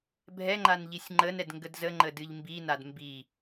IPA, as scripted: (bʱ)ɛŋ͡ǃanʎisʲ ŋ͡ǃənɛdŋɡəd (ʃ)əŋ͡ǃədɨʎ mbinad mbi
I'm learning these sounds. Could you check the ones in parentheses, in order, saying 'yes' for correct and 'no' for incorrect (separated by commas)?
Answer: yes, no